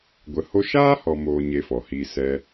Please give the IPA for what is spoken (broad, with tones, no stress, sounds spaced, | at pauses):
ɡʷ ə˧ h o˦ ʃ aː˦ h ɔ˨ m oː˨ ɲ e˧ f ɔ˨ h iː˧ s ɛ˧